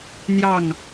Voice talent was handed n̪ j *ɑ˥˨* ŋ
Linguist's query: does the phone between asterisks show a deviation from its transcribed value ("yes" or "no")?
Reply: no